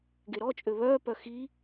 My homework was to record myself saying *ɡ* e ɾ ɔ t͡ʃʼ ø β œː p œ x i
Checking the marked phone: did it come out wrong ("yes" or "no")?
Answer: no